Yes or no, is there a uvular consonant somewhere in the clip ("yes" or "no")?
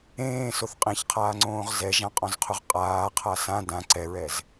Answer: yes